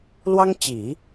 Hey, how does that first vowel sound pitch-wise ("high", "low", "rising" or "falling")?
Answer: high